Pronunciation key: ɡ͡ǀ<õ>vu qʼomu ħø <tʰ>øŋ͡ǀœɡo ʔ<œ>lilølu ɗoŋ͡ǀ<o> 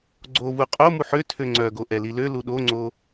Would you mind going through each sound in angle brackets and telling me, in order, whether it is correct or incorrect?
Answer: incorrect, correct, incorrect, correct

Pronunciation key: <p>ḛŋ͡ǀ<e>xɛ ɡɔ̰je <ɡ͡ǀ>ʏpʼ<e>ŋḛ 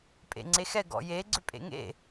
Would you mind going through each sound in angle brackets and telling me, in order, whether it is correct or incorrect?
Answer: incorrect, correct, correct, incorrect

